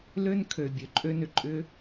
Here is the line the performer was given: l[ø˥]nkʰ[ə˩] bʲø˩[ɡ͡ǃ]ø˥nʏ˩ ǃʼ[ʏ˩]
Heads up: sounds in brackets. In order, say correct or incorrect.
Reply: correct, incorrect: ø˩, incorrect: ǃʼ, incorrect: ʏ˥

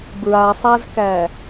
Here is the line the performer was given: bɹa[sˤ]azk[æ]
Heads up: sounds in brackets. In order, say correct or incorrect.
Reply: correct, correct

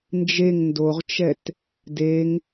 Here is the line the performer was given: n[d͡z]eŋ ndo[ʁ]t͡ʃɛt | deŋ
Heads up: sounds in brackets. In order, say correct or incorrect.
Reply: incorrect: d͡ʒ, correct

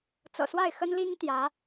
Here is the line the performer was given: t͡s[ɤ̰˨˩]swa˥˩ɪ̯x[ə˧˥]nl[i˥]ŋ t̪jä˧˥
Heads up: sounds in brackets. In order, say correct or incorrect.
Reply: correct, incorrect: ə˥, correct

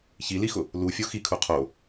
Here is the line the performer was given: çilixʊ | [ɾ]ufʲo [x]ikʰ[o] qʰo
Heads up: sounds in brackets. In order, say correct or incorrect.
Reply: incorrect: l, correct, incorrect: u

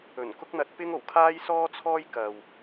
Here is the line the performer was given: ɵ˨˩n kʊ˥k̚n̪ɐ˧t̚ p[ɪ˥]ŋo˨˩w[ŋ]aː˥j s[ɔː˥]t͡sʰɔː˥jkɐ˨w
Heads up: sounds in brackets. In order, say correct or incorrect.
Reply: correct, incorrect: kʰ, correct

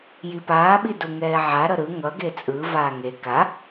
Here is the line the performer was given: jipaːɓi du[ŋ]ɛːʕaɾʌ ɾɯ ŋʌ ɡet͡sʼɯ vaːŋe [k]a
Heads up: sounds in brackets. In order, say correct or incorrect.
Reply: correct, correct

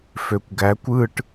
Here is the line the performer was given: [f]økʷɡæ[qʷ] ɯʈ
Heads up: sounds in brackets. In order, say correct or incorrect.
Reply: correct, incorrect: kʷ

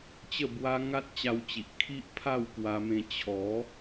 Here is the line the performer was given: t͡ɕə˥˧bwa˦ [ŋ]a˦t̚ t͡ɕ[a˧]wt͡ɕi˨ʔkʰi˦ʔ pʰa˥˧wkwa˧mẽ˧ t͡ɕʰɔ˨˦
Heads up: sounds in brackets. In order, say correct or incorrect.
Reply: correct, correct

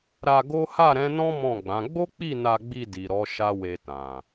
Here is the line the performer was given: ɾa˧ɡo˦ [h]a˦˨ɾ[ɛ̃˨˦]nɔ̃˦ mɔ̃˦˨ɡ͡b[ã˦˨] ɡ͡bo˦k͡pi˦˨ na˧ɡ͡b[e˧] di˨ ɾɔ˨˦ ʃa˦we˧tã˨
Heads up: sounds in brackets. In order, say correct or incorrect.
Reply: correct, correct, incorrect: ã˨˦, incorrect: i˧

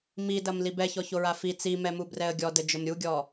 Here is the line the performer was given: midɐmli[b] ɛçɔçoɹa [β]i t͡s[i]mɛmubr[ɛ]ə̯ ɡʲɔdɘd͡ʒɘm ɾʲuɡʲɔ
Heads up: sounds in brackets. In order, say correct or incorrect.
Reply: correct, incorrect: f, correct, correct

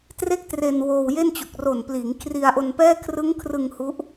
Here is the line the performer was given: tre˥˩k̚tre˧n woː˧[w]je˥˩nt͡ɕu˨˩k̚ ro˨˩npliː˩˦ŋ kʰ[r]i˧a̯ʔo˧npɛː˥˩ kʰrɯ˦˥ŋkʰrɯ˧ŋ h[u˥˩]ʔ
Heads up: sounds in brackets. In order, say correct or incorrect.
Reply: correct, correct, incorrect: u˦˥

